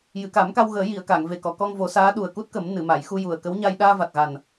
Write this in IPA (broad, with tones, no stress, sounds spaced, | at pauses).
j ɨ˨˩˨ k a˨˩˦ m k a˧ w ɣ əː˨˩˦ j i˨˩˨ ə̯ k a˨˩˨ ŋ v e˨˩ k ɔ˨˩˨ k ɔ˧ ŋ v o˨˩˦ s aː˧˥ ɗ u˨˩ ə̯ k u˦˥ t̚ k ə˨˩˦ m n ɨ˨˩˨ m a˨˩˨ j x u˧ j u˨˩ ə̯ k ə˧˥ w ɲ a˧ j ɗ aː˧ v a˨˩ t̚ ɣ a˨˩ n